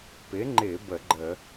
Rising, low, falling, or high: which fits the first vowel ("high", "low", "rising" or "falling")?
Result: rising